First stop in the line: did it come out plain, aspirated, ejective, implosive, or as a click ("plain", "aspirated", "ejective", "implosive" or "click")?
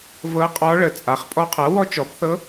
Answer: ejective